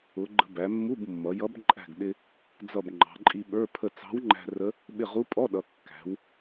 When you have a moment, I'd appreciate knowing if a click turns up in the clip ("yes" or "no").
yes